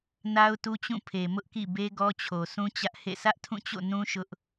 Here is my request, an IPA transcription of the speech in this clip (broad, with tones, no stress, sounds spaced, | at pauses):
n a˦ ʊ̯ t u˦ t͡ɕ ũ˦˨ pʰ e˨ m ʊ˦ ʔ k ḭ˦˨ b e˦ ɡ ɔ˦ t͡ɕʰ o˨ sʰ ũ˦ t͡ɕ ä˦ ʔ h ḛ˦˨ sʰ ä˦ ʔ tʰ ũ˦˨ t͡ɕ o̰˦˨ n ũ˦ ʃ ʊ˦ ʔ